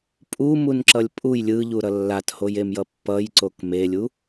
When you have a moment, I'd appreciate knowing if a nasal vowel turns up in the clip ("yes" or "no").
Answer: no